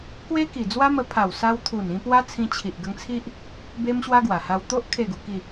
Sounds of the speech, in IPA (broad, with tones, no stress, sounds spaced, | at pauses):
k w e˦ k i˨˩ d͡z w a˦ m ə˧ pʰ a˨˩ w s a˧ w t̪ʰ u˨˩ n ĩ˧ p w a˦ t͡sʰ ĩ˧ t͡ɕʰ i˨ ʔ ɡ ə˧ ŋ t͡sʰ i˦ ʔ | b e˦ m ɕ w a˦ ɡ w a˨˩ h a˧ w t̪ o˦ ʔ kʰ e˥˧ ɡ u˧ k i˥˧